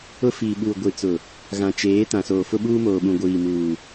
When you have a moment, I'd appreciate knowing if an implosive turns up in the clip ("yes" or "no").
yes